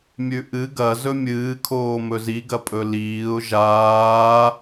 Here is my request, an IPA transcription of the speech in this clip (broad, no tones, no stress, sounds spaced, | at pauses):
mʲ ʉ ʔ ɨ ɡ ɐ z ɵ mʲ ɨː kʰ oː m ɵ z i ɡ ɐ pʼ ɵ l iː ʊ̯ ʒ aː